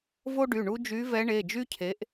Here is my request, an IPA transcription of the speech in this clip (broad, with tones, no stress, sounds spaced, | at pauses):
v o˦ ɖ y˩˧˩ ɳ u˦ d͡ʒ y˨˦ v ɛ˨˦ ɳ e˩˧˩ d͡ʒ y˦ cʰ e˨˦ ʔ